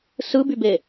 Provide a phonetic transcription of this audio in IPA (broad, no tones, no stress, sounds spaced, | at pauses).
s ɯ b y b e